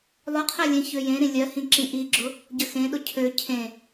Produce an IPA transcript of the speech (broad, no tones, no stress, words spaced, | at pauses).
lˠʊqʰɜlʲẽ çøjẽ ɾĩlʲɜhĩǁĩ ʔiɡ͡ǁʊ | ɟəxẽɗʊ cʰø cʰẽ